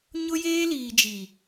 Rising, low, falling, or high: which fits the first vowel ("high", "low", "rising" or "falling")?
high